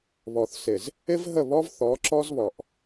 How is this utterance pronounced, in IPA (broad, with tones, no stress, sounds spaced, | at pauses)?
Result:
β ɔ˨ θ s ɪ˨ z | ɪ˦ v ɦ ə˦˨ β ɔ˦ v θ ɔ˨˦ ǁ ɔ˦ z β ɔ˨ ʔ